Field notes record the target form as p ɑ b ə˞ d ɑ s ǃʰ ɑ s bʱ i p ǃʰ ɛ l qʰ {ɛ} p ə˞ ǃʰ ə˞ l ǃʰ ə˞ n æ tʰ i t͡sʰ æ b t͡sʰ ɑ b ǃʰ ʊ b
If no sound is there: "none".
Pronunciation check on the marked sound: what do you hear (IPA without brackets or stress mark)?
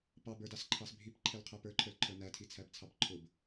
ɛ